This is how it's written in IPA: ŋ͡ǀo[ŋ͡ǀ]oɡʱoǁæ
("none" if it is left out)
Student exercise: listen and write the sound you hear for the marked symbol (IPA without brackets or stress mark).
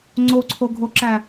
ǀʰ